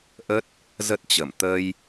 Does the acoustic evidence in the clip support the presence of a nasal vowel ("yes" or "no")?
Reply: no